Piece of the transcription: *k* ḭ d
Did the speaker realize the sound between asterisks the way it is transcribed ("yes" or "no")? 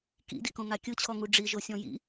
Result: yes